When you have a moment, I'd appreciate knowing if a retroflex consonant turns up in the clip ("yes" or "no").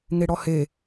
yes